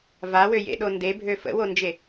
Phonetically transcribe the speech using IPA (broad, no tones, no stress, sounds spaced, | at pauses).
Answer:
v a w ø j ḛ ɗ o n d e bʱ ø f ə̰ w o n d͡ʒ e